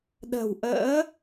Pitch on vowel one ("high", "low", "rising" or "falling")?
low